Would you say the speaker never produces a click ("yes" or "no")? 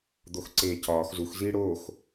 no